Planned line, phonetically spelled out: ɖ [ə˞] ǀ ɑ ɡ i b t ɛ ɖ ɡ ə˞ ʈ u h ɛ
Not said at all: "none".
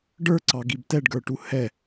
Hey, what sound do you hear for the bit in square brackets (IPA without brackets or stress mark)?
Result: ə˞